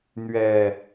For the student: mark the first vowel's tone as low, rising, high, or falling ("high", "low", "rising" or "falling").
low